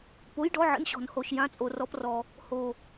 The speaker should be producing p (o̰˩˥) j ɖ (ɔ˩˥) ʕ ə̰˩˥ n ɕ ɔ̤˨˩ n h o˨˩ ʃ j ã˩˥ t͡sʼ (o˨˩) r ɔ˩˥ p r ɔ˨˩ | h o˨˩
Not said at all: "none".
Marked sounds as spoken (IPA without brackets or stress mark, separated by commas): o˩˥, ɔ˩˥, o˨˩